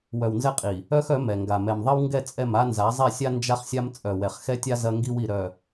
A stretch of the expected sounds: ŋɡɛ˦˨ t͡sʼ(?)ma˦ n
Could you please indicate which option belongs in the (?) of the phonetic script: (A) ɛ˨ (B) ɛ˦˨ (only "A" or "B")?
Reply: B